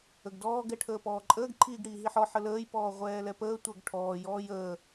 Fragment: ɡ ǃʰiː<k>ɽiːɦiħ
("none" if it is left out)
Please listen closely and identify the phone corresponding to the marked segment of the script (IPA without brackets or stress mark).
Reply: ɡ